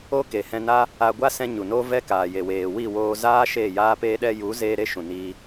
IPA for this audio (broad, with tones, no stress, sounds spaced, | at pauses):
o˦ k e˨ h ɛ̃˧ n a˦ | a˧ ɡʷ a˦ s ɛ̃˧ ɲ u˨ n o˦ v ɛ˦ k aː˨ j e˨ w eː˨ w i˦˨ w oː˧ z aː˦ ʃ eː˦˨ j aː˦ p eː˧ ɗ ɛ˧ j u˨˦ z eː˧ ɾ e˦ ʃ ũ˨ n i˧